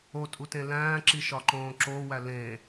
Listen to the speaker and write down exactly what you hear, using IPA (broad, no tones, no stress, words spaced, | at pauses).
otʼutẽ læ̃ːǁiʃɒǃõː ǁowæ lẽ